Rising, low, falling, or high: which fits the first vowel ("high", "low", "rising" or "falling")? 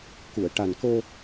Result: low